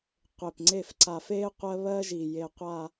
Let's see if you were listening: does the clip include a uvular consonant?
yes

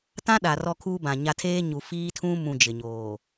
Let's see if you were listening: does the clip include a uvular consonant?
no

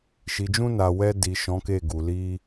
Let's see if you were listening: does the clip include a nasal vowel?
yes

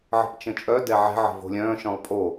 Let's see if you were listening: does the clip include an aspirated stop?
no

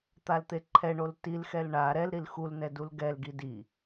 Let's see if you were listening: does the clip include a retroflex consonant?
yes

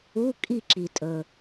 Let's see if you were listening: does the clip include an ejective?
yes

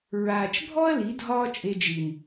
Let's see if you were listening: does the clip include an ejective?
yes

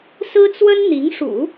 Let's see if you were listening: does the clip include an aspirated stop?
no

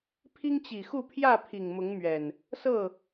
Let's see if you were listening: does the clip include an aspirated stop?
yes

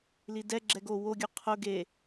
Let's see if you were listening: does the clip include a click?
yes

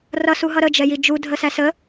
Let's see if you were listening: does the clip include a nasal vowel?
no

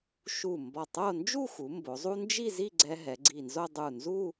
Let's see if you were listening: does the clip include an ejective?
no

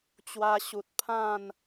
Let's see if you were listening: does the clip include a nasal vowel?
yes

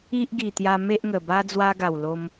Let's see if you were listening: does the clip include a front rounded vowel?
no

